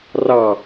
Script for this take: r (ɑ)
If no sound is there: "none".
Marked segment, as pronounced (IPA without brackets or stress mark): ɑ